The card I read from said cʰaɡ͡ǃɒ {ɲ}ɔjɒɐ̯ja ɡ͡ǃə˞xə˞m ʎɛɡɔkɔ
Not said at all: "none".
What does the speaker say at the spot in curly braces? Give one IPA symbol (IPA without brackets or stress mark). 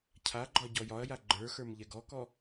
ɟ